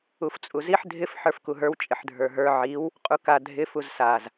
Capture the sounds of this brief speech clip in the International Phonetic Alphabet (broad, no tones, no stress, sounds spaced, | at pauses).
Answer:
u f t͡sʼ u z i ħ dʱ ɪ f ħ ə˞ f k u ɦ ə˞ w t͡ʃʼ ɪ ħ dʱ ə˞ ɦ ə˞ ʕ i w | qʼ u k a dʱ ɪ f u z s a z